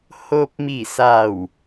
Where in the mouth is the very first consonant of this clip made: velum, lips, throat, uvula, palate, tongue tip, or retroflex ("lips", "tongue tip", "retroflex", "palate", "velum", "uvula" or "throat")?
throat